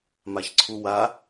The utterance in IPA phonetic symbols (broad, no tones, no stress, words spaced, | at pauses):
maçǀʰuwa